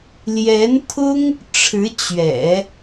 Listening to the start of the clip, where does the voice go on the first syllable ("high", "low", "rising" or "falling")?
rising